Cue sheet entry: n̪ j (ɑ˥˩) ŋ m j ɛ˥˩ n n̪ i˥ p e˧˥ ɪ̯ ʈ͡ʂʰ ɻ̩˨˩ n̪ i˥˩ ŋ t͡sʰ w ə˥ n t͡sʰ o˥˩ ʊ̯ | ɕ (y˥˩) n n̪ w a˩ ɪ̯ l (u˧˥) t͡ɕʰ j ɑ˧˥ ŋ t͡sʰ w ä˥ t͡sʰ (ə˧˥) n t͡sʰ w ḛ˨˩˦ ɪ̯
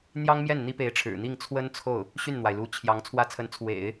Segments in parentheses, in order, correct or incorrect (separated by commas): incorrect, correct, correct, correct